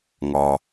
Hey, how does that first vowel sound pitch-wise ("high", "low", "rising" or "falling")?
low